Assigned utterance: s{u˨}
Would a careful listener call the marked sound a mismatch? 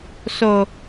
yes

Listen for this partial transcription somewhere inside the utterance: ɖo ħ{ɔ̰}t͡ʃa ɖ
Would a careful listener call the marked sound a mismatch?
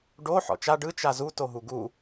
no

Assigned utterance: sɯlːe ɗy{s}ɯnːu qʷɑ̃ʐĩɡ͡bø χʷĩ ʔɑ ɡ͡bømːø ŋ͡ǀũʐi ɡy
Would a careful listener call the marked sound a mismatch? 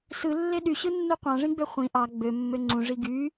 yes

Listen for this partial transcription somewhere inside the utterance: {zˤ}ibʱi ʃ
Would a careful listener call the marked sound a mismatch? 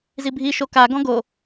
yes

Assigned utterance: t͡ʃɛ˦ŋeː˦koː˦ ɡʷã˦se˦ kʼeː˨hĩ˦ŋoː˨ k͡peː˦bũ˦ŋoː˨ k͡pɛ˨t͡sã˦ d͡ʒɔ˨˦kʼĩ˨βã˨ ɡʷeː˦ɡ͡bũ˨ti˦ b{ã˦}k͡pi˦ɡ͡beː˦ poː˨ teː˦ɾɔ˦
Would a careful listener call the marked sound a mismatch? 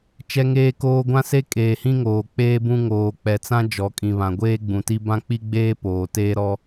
no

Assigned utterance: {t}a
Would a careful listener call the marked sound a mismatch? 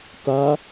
no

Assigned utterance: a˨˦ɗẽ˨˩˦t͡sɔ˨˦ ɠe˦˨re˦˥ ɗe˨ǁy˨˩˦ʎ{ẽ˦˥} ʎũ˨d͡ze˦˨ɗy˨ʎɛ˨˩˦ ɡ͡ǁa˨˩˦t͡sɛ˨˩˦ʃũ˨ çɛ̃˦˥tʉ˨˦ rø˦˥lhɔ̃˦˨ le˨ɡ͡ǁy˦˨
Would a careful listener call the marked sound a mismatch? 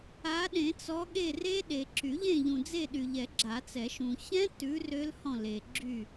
yes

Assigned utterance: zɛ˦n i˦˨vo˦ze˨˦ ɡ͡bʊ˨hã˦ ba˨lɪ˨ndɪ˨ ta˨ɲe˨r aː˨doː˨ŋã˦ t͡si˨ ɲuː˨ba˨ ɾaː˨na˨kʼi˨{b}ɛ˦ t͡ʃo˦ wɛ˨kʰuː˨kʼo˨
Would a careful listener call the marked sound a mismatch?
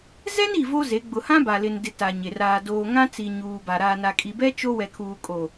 no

